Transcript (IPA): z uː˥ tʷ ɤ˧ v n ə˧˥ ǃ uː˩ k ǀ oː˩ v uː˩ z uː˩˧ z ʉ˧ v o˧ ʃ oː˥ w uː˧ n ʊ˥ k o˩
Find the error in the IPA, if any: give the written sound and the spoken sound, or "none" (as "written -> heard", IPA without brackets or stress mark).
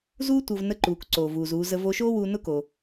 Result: ʉ˧ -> ə˧